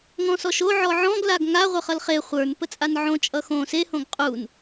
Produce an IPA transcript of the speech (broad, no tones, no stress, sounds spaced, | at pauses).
ŋ ɔ̃ s ɔ ʃ o ʕ ɔ ʕ ɔ̃ ɡ l a ɡ ŋ a ʁʷ ə˞ χ ʌ l χ e χʷ ə˞ n p ə t͡sʼ a n ʕ õ t͡ʃʼ ʌ x õ s e h õ ɡ qʼ u n